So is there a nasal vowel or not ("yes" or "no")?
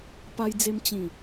yes